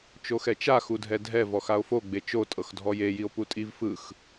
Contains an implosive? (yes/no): no